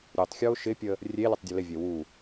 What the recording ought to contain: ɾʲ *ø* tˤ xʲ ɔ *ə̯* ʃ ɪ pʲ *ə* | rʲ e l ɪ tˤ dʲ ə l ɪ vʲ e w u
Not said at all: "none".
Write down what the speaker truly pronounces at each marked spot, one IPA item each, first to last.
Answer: ø, ʊ̯, ə

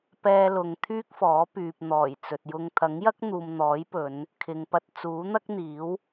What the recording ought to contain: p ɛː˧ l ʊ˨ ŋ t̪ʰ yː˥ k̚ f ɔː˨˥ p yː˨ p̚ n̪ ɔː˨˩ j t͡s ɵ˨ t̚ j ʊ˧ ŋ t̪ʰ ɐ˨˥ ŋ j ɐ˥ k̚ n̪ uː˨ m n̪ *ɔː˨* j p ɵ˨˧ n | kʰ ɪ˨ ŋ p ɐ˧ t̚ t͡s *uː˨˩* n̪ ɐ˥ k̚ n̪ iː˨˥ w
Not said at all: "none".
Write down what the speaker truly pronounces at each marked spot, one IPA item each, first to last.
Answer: ɔː˨˥, uː˨˥

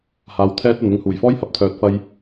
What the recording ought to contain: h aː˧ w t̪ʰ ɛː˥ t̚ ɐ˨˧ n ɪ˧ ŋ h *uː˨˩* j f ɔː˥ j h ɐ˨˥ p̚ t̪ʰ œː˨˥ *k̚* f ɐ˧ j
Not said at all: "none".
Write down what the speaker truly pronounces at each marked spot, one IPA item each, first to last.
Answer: uː˨˩, t̚

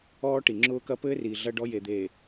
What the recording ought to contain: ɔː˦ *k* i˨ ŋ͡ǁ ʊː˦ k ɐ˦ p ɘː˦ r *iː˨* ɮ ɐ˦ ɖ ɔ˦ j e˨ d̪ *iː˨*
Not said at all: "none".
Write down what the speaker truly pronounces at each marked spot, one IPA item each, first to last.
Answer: ʈ, iː˨, eː˨

